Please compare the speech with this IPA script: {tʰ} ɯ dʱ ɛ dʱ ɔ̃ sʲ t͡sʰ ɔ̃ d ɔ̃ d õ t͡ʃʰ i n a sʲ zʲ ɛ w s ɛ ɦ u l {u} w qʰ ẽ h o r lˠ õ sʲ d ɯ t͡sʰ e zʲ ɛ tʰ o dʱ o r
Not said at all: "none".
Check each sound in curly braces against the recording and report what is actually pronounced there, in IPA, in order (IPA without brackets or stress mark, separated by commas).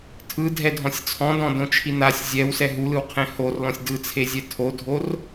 tʰ, ɯ